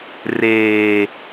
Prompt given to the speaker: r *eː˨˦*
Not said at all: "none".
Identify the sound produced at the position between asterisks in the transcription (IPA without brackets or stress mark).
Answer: eː˨